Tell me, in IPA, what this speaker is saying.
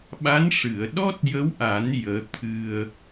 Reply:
ɓ a˧˥ n ʂ ɨ˨˩˨ ə̯ ɗ ɔ˦˥ t̚ j ə˧˥ w ʔ a˨˩˦ n j əː˧˥ t̪ʰ ɨ˧ ə̯

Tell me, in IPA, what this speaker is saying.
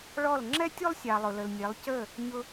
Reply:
ɭ ɔ˥˨ l ŋ͡ǁ ɛ˥ tʲ u˥ lˠ sʲ ɑ˨ lˠ ʊ˨ l ə˨ l nʲ ɛ˨˦ lˠ c ə˥˨ | ɲ ʊ˥

